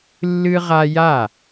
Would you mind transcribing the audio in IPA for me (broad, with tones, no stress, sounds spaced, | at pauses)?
lː ɨ˦ ʁ a˦ j a˥˩